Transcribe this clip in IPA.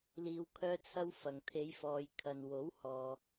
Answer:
l iː˨ w kʰ œː˧ t͡sʰ ɐ˧ w f ɐ˨ ŋ t̪ʰ e˨˧ j f ɔː˨ j kʰ ɐ˨ n w o˨˥ w h ɔː˨

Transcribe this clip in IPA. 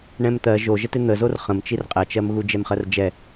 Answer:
ɳ ɛ̃ m t̪ ɜ ʒ o ʒ ə t ɪ n̪ ə z o r χ ə̃ m t͡ʃ i r qʼ ɛ t͡ʃ ɜ m ɣ u d͡ʒ ɛ m χ ɜ r d͡ʒ ɛ

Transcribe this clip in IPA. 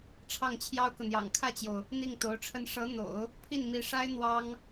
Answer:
ʈ͡ʂʰ ɑ˥˩ ŋ t͡ɕʰ j ɑ˥ ʊ̯ k ɤ˨ n̪ j ɑ̰˨˩ ŋ kʰ ä˥˩ t͡ɕ j o˩ ʊ̯ | n̪ i˥˩ ŋ t̪ o˧˥ ʊ̯ ʈ͡ʂʰ ə˥˩ n ʂ ɤ˧˥ n̪ o̰˨˩˦ ʊ̯ | pʰ i˥˩ n m i˧˥ ʂ a˥ ɪ̯ n̪ w ɑ˥ ŋ

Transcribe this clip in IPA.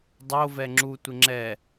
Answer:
dˤ o v ɛ ŋ͡ǁ u tʷ ɪ ŋ͡ǁ ɛ

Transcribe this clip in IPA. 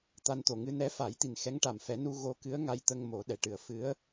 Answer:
t̪ a˧ n t̪ o˨˩ ŋ ɨ˧ n ɛ˧˥ f a˨˩˦ j t̪ i˨˩ n x ɛ˧˥ ŋ ʈ a˨˩ m f ɛ˨˩˦ n u˧ ɣ o˧ k ɨ˧˥ ə̯ ŋ a˧ j t̪ ə˧ ŋ m o˨˩˦ ɗ ɛ˨˩ ʈ ɨ˨˩˨ ə̯ f ɨ˧˥ ə̯

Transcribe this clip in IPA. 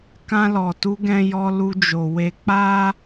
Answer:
k ã˧ l ɔ˨ t u˧ ɡ ɛ̃˧ j ɔ˧ l u˧ d͡ʒ o˨ w e˧ k͡p a˦

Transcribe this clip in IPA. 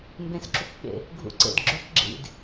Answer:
m b ẽ s ǁ u p ɓ ḛ | ɡʱ ṵ ǀ ḛ d ɡ͡ǁ ɵ p ɡ͡ǁ ḭ d

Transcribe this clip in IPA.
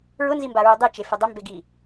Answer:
ɹ ʊ n z i m b a ɹ u dˤ i t͡ʃ e f ɪ dˤ ɪ m b e ɡ i

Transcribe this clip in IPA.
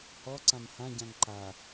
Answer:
h ɔ ǀ ã m h ã ɟ ã ŋ ǃ a

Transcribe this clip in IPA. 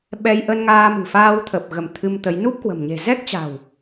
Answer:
ɓ ɛ˧ j ʔ ə˧ n ŋ aː˧ m ɨ̤˨˩ f aː˧ w t̪ʰ ə˨˩ p̚ ɣ ə˧˩ m t̪ʰ ɨ˧ m t̪ ə˨˦ j n u˦˥ p̚ k w ə̤˨˩ m ɲ e̤˨˩ z ɛ˦˥ k̚ t͡ɕ a̤˨˩ w

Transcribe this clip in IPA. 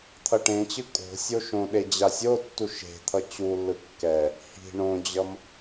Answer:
t̪ʰ ʌ ʈ ẽ t͡ɕ ɯ kʼ o̤ sʲ o ʃ õ ɗ e d͡ʑ a sʲ o tː u ʃ e̤ t̪ʰ ʌ t͡ɕ u lː ɯ kː ɛ | h i̤ ɳ õ d͡ʑ ʌ m

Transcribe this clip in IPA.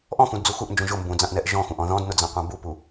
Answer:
ʔ ɔ̃ x ũ d d͡z u x u ʔ n d͡ʒ ũ ʒ ʊ m b ũ d͡z ã ʔ n ɛ ʔ ʒ ɔ̃ x ũ ʔ ɔ̃ ð ɔ̃ d n ʊ d͡z ã qʷ ã b u p u

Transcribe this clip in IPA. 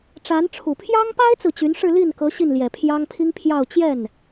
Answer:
ʈ͡ʂ a˧˥ n ʈ͡ʂʰ u˨˩ pʰ j ɑ˥ ŋ p a˥ ɪ̯ t͡s ɹ̩˨ t͡ɕ y˧˥ n ʂ ɻ̩˥˧ l i˥˩ n k ɤ˧˥ ɕ i˥˩ n l j ɛ˨˩ pʰ j ɑ˥ ŋ pʰ i˥ ŋ pʰ j ɑ˥˧ ʊ̯ t͡ɕ j ɛ˥˩ n

